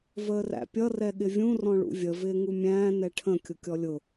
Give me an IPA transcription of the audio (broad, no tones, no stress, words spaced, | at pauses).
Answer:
vəːræ̰pʲʌ rɛɠɪvʲũ rɔ̃ɭṵvʲə vɪːŋumʲæ̃ː nɛʈʰə̃ kʲʊkʲɔlʲʊ